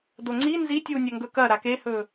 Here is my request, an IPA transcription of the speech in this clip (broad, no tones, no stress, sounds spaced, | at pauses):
d o ŋ͡ǀ i n z i tʲ uː nʲ ɐ ŋ ɡ ɵ k ɐ ɾ a k e h ɵː